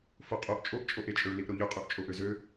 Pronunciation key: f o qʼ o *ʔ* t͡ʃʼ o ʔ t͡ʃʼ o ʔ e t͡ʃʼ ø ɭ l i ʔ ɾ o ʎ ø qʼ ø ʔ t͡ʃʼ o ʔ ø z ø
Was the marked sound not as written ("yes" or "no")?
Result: no